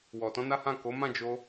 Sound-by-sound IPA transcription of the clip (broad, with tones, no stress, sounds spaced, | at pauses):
w ɔ˨ t ɔ̃˧ n a˦ h ã˦˨ k o˨˦ m ã˦˨ d͡ʒ o˧